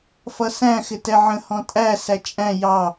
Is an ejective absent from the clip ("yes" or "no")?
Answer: no